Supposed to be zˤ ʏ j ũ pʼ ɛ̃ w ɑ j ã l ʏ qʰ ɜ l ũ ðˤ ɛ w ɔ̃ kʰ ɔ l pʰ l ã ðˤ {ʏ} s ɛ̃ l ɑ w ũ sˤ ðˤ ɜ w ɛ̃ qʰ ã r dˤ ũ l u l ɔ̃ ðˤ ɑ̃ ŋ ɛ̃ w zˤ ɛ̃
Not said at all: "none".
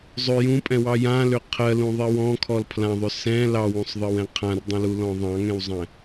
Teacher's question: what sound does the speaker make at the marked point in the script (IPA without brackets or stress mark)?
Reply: ʏ